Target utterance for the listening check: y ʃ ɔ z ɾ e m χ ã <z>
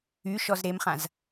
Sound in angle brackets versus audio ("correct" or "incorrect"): correct